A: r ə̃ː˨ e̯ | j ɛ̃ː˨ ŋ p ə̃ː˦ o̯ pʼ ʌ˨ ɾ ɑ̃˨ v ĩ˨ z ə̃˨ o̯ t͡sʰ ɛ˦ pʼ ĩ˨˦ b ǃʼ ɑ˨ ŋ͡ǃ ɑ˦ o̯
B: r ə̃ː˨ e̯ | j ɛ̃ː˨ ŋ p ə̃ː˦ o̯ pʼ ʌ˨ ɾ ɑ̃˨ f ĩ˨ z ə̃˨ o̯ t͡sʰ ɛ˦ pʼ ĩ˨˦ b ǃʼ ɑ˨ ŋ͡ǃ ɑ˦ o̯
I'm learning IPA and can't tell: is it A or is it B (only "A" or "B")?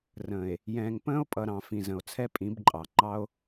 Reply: B